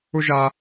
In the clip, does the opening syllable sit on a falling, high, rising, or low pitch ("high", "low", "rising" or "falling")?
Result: high